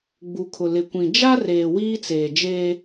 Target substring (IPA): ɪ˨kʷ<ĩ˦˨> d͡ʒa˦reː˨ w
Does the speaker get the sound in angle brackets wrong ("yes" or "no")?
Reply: yes